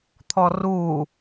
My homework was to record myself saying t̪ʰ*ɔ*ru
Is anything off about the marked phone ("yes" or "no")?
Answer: no